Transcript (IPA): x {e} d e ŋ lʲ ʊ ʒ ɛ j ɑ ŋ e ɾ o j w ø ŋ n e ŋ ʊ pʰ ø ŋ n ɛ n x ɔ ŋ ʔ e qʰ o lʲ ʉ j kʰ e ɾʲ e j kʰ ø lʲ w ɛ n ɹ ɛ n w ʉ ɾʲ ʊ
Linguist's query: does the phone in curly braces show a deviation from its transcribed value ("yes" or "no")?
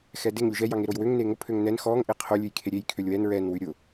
yes